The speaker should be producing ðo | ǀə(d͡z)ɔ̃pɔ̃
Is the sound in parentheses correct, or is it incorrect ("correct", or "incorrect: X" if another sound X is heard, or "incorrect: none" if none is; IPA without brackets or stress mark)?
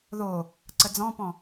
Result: correct